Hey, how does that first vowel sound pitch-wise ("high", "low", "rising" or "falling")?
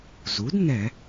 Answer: rising